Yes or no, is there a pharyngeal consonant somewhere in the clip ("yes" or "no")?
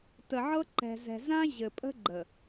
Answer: yes